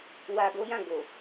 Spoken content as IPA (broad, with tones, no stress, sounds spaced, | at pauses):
w a˧ ɡ o˦ j ã˦˨ ɡ o˨